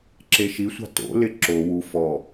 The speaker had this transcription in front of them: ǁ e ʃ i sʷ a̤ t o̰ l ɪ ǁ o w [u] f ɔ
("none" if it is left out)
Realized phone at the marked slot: u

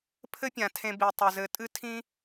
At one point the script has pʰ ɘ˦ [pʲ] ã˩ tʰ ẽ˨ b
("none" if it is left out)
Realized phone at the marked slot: pʲ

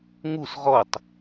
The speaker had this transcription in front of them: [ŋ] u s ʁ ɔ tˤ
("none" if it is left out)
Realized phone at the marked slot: ŋ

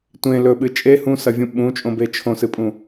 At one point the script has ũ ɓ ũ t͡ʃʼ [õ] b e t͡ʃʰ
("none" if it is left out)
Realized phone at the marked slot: õ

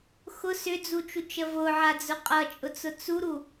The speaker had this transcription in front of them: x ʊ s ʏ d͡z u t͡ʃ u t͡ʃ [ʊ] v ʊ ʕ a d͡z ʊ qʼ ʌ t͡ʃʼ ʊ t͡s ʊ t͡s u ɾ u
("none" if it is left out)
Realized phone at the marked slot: ə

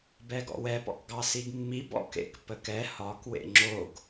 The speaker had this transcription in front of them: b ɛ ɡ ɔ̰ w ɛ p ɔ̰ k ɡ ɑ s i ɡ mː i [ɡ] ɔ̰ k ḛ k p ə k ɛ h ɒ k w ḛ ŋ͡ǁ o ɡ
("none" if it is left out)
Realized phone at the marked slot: b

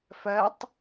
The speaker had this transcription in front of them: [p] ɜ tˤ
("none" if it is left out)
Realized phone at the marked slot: f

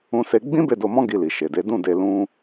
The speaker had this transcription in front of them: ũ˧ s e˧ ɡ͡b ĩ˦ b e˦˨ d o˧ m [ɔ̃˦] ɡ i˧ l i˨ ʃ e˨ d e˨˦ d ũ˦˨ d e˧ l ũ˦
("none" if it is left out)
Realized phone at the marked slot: ɔ̃˦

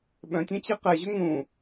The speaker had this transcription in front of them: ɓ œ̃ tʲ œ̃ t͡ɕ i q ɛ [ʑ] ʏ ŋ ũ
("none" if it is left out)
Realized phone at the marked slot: ʑ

